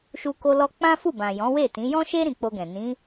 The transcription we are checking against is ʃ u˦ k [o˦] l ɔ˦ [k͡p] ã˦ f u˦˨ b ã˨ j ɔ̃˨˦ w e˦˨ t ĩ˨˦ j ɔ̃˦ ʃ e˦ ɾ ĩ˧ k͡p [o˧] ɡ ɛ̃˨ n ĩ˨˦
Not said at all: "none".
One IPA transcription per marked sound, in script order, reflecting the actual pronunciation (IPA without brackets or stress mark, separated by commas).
o˦, k͡p, o˧